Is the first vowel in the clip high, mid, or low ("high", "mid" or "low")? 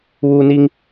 high